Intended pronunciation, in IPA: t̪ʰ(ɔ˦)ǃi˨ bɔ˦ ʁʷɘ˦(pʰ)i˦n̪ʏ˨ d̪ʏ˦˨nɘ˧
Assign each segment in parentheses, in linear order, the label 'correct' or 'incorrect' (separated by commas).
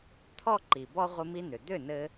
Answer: correct, incorrect